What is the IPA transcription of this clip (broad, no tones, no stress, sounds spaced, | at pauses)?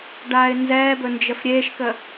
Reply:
ɖ aː ɪ̯ n z ɛː b ɵ n d͡ʒ ə f ɾʲ eː ʃ k ə